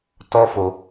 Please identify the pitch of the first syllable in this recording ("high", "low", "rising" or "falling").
high